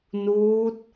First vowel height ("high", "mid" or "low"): high